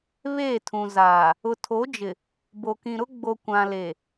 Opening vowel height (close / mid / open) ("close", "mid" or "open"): mid